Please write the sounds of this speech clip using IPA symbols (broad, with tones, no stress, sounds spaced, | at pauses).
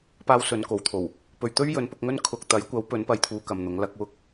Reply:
p aː˥ w s ɵ˨˧ n k o˨˥ w t̪ʰ o˨˩ w | p ɵ˨ ɥ t̪ ɵ˥ ɥ j ɵ˨˥ n p ʊ˧ k̚ ŋ ɵ˥ n kʰ ʊ˧ k̚ t̪ ɐ˨˥ j kʷ ɐ˨˥ w p ɵ˨˥ n p ɐ˧ j t̪ʰ uː˧ k ɐ˨ m n̪ ʊ˨˥ ŋ l ɐ˧ k̚ w ʊ˥ k̚